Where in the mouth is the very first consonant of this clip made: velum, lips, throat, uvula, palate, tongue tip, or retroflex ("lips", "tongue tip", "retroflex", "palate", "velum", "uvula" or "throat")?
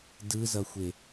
tongue tip